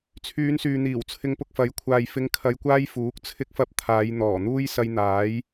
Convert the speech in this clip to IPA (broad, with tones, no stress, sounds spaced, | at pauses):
t͡sʰ yː˨˧ n s yː˨ n̪ iː˨˩ w t͡sʰ ɪ˧ ŋ p ʊ˨ k̚ f ɐ˨˥ j kʷʰ aː˨ j f ɪ˨˧ ŋ kʰ ɐ˧ j kʷ aː˥ j f uː˨˥ k̚ t͡sʰ ɪ˧ k̚ f ɐ˧ p̚ t̪ʰ aː˨˧ j n̪ ɔː˨˩ n̪ uː˥ j s ɐ˧ j n̪ aː˨˥ j